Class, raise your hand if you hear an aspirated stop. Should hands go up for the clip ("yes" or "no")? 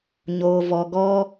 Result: no